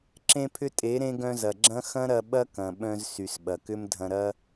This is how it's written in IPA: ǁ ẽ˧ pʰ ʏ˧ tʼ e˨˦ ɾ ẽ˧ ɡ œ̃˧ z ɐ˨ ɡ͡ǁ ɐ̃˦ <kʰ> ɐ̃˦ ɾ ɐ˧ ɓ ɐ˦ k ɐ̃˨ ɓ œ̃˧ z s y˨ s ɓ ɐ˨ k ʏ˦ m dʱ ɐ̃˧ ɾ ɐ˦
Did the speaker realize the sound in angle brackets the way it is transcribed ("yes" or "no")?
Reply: no